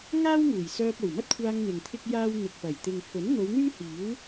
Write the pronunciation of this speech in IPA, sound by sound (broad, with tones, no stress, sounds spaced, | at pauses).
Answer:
ŋ aː˥ w ŋ uː˨˩ j s œː˧ p̚ o˨˩ w m ɐ˥ t̚ kʷʰ aː˧ ŋ n̪ ɪ˨ ŋ t̪ʰ ɪ˥ k̚ j aː˥ w n̪ ɪ˨ k̚ p ɐ˨˩ j t̪ ɪ˨ ŋ f ɵ˨˥ n n̪ o˨˧ w n̪ yː˥ h iː˨˥ w